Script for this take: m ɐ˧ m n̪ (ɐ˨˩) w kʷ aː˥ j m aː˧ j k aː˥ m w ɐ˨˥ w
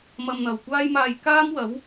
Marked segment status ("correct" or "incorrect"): incorrect